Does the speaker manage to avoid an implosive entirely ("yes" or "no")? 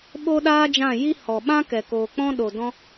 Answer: no